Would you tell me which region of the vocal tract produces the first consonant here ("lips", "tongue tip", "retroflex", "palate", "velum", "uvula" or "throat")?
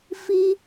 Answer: lips